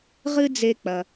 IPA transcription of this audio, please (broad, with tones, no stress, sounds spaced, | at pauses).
ʁ ɨ˥ d͡z e˥ k͡p ɐ˧